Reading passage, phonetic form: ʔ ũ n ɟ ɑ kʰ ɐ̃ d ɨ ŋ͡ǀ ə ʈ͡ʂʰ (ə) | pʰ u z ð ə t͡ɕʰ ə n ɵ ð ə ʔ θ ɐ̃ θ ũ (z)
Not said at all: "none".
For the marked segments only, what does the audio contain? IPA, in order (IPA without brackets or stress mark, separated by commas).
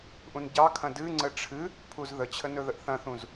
ɨ, z